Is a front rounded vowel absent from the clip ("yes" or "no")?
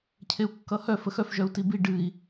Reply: no